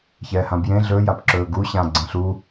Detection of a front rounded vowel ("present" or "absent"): absent